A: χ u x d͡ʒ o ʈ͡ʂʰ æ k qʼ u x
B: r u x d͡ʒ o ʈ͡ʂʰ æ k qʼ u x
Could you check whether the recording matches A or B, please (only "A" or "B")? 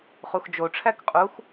A